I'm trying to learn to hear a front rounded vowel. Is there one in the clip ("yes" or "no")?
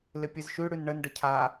no